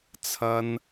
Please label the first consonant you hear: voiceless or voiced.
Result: voiceless